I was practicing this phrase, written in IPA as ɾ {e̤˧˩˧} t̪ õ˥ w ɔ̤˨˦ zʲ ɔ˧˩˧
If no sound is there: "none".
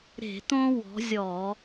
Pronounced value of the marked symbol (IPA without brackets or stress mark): e̤˧˩˧